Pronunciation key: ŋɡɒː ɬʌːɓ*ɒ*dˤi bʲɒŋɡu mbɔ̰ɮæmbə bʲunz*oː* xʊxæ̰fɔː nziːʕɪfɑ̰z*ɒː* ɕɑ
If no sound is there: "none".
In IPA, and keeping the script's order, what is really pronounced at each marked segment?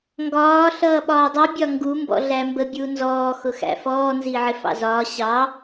ɒː, ɔː, ɒː

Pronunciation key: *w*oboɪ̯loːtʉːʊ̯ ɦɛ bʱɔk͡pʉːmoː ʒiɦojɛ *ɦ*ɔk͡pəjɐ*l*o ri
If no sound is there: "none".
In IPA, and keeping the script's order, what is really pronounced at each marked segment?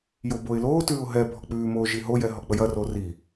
j, ɦ, r

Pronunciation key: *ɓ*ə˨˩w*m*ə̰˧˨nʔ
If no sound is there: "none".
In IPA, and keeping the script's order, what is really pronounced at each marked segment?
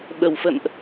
ɓ, f

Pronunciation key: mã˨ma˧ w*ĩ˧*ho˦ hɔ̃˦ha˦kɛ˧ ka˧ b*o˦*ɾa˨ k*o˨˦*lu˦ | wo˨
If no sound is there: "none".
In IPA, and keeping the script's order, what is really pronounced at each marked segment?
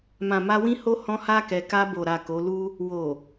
ĩ˦, o˨, o˨˦

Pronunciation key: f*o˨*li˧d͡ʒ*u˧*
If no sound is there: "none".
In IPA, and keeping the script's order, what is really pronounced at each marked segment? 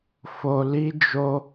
o˨, o˧

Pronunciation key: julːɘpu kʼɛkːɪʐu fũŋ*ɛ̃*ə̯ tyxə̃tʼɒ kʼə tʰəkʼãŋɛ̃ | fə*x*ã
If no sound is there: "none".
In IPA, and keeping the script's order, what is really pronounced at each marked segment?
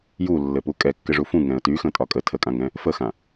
ɛ̃, x

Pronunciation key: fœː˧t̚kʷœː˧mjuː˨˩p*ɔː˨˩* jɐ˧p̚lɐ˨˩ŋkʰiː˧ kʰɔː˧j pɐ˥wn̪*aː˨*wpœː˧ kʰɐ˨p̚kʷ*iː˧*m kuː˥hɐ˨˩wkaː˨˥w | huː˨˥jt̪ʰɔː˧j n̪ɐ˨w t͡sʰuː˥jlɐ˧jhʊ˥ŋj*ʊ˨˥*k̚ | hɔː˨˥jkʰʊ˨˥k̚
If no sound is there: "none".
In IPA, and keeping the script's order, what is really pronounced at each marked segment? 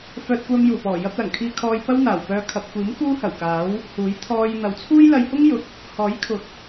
ɔː˨˩, aː˨˩, iː˨˥, ʊ˨˥

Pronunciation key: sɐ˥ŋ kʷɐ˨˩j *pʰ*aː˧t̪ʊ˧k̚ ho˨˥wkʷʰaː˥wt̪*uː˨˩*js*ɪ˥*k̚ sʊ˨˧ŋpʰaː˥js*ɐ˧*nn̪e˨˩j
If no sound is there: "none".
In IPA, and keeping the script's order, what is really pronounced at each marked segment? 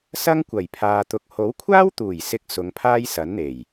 pʰ, uː˨˩, ɪ˨˥, ɐ˨˥

